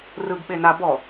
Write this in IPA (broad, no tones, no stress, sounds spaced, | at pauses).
r ɯ ɡ ɓ e n a b ɔ